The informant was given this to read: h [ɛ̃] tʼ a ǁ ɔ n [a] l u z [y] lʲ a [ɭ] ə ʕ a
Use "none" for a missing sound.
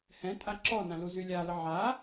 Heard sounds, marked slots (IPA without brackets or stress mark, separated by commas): ɛ̃, ã, y, l